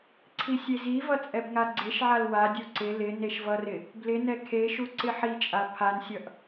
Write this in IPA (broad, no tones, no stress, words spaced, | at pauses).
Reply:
ǀʰisʲezivʌ t͡sʼɛbŋaɡ͡ǀeʃʕal wadʲu ǀɪ lɪ neʃvʌrɪ | blɪnɛ kʰeʃu ǀɪħit͡ʃʼa pʰansʲʌʔ